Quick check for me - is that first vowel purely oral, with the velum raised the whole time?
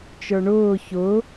yes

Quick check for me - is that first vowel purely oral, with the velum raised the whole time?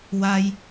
yes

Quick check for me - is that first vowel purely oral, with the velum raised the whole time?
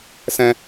no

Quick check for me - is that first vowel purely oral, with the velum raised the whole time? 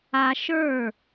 yes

